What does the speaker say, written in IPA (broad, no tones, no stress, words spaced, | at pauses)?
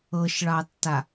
ɤʃɭɑtːa